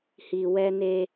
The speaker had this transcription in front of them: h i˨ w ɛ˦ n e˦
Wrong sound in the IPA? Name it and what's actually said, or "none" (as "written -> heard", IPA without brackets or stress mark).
none